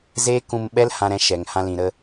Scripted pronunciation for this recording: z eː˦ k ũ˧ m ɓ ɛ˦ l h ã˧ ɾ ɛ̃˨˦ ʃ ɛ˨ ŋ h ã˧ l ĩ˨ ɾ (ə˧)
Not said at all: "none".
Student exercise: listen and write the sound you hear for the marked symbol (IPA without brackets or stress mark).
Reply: ə˧